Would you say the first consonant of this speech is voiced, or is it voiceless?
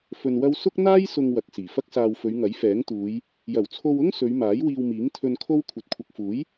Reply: voiceless